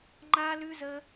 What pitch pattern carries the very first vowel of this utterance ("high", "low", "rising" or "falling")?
high